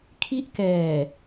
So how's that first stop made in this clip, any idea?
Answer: aspirated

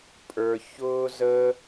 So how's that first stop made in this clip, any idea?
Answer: ejective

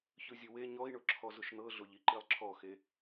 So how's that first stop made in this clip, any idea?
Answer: click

